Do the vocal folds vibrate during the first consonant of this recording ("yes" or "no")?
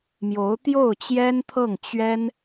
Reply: yes